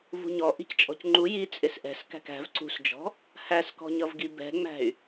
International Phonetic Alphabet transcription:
v ṳ ɲ ɔ ʔ i̤ c t͡ʃʼ ɔ̤ c ŋ͡ǃ u j i t͡sʼ ɪ s ʔ ɛ̤ s k æ̤ k æ̤ v ǀ ṳ s d͡ʒ ɔ̤ | h æ s k ɔ̤ ɲ ʌ v ɡ i b ɛ̤ ŋ͡m æ̤ y̯

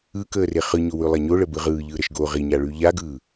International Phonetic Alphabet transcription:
ɯ k əː r e χ ɯ ɲ o w ʉ lˠ a ɲ o ɭ ə b ɯ ʁ ɯː ʎ ɯː ɾ ə ʃ ɡ o ʁ i ɲ a ɭ ʉ ʎ a ɡ ɯː

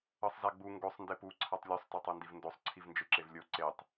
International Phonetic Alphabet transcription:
ɤ sˤ z a ɡ͡b u ŋ ɡ o sˤ n d e p u ǀʰ a tˤ lʲ o sˤ t a tˤ ɤ n d i v n d o sˤ ǀʰ i v n d͡ʒ ɯ ǁ e v lʲ o ǀ e tˤ

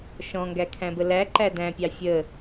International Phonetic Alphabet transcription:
ʃ ɔ̃ ŋ ɡ æ kʰ æ̃ b ə l æ ǃ æ d æ̃ pʲ ɑ fʲ ə

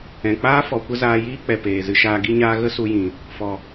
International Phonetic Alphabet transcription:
ɛ̃˨ k͡p aː˦ f ɔ˨ kʷ ə˧ z aː˧ j iː˦ k͡p ɛ˨ p eː˨ z ɨ˧ ʃ aː˧ ɡ i˦ ɲ aː˦ ɣ ə˦ s u˧ j ĩ˨ | f ɔ˨

